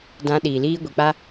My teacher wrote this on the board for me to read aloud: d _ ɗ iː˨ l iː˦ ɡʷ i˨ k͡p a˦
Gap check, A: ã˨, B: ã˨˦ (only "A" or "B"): B